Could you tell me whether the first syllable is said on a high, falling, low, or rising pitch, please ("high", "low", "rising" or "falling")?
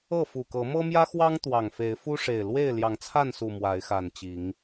falling